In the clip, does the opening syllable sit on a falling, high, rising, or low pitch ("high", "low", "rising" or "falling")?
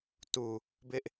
low